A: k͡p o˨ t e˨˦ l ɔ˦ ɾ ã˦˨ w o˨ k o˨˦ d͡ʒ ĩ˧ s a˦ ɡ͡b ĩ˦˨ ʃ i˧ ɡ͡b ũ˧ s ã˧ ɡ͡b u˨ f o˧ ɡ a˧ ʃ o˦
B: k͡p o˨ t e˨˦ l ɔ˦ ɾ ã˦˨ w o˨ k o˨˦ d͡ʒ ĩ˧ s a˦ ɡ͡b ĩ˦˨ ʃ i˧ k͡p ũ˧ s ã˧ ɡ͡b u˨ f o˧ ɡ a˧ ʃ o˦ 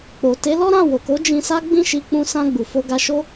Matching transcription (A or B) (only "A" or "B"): B